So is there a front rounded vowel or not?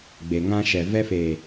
no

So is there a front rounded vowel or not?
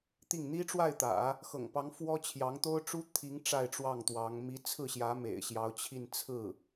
no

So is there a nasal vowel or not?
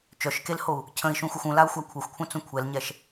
yes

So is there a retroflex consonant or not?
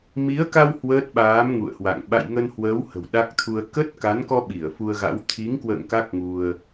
no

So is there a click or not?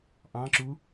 yes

